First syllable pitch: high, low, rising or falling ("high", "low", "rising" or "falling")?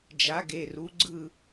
rising